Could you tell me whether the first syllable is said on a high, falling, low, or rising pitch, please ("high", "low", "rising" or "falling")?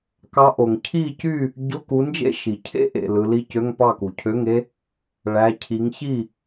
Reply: rising